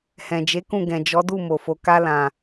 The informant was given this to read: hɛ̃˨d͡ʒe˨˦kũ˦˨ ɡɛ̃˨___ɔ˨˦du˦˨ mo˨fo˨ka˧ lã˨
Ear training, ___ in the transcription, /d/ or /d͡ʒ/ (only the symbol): d͡ʒ